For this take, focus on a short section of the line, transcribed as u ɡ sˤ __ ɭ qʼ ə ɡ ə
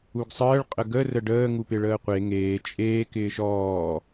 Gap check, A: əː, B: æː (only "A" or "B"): A